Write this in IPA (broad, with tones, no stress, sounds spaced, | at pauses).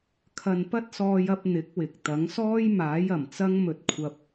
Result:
kʰ ɐ˧ n p ɐ˥ t̚ s ɔː˧ j ɐ˧ p̚ n̪ ɪ˨˥ k̚ w ɪ˨ k̚ t̪ ɐ˨˥ ŋ s ɔː˥ j m aː˨˥ j ɐ˨˩ m t͡s ɐ˥ ŋ m ɵ˧ t̚ kʷʰ ɐ˧ p̚